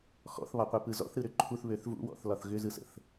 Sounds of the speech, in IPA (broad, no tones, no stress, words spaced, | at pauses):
xɔ̰θβɒqʷipɯ zɔ̰θɾɯɾʏ ǃʰuθβøθ vṵwɔ̰θlɒθ ɣʏzɯsə̰θ